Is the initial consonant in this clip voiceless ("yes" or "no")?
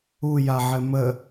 no